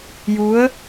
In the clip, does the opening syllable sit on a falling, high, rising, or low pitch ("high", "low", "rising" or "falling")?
rising